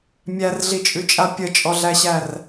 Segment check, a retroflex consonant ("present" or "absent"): absent